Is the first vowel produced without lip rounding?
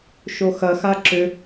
no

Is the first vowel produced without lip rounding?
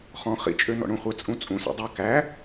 no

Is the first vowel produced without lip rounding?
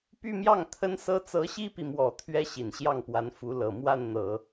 no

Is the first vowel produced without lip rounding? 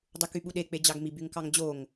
no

